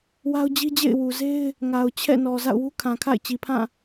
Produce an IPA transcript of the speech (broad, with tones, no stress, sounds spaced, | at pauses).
w a˦ ʊ̯ d͡ʑ i˦ d͡ʑ ḛ˦˨ ɪ̯ w u˨ z e˦ ɪ̯ | ŋ a˨ ʊ̯ t͡ɕʰ ɛ̰˦˨ n ɔ˨ z a̰˦˨ ʊ̯ w u˦ kʰ ã˨ kʰ a̰˦˨ ɪ̯ t͡ɕ i˨ pʰ ã˦˨